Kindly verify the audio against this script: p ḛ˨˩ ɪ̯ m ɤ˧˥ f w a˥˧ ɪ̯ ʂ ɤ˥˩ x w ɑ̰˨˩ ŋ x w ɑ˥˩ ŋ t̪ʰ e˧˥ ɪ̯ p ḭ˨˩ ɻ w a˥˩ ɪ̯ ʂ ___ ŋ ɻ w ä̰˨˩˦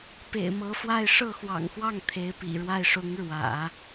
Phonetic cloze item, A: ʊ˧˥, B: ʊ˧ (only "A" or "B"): A